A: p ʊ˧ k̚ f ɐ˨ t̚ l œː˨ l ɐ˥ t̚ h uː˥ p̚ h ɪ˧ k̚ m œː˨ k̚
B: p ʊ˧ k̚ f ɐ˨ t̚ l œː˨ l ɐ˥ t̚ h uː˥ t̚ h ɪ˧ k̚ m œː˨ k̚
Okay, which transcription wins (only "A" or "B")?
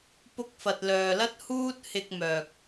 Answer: B